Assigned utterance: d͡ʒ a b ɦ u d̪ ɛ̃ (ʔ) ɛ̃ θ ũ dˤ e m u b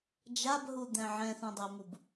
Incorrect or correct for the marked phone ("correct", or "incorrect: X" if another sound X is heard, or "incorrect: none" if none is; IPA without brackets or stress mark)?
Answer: incorrect: ʕ